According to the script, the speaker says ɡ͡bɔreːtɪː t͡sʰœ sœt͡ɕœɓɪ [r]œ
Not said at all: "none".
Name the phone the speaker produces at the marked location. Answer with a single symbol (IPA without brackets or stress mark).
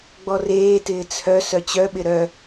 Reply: ɾ